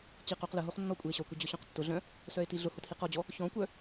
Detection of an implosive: absent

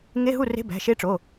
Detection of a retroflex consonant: present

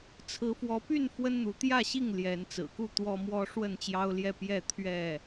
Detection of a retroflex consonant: present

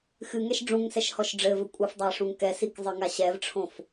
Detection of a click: absent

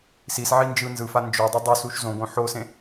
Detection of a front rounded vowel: absent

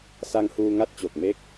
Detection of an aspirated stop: absent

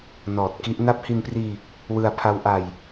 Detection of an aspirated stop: present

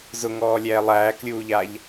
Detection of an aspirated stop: absent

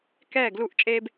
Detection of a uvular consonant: absent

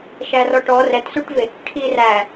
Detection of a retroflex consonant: present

